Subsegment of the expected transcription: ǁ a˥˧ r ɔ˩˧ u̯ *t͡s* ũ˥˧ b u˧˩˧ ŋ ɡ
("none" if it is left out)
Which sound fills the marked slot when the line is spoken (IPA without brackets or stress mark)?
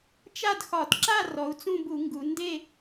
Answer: t͡s